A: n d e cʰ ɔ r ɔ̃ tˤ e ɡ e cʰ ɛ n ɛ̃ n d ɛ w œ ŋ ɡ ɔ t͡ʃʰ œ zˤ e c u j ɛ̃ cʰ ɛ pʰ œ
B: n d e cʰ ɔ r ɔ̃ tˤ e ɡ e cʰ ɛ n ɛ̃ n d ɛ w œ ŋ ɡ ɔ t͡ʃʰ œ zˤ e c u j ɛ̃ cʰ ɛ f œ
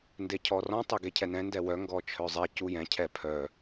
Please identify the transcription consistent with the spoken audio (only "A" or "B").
A